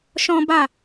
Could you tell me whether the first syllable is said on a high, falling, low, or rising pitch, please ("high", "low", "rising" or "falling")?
high